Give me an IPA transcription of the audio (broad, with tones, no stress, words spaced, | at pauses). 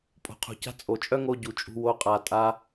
pʼo̤˨qʰṳ˨ca̤˧ t͡sʼo˨t͡ʃʼœ˦ŋo˧ ɟu˨t͡ʃʼṳ˧ wo˦qʼa˧tʼa˦